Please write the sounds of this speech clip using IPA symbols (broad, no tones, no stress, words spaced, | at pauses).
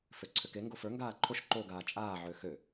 føǀʰʏke ŋɡofə˞ ŋɡaːǃʰoʃ ǃoɡaː t͡ʃʼaː ʕøxø